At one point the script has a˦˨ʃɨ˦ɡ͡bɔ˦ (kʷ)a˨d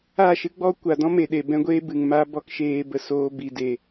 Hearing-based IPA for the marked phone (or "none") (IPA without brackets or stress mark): kʷ